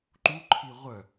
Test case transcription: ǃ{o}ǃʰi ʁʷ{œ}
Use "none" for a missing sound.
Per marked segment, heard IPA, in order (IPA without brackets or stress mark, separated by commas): u, œ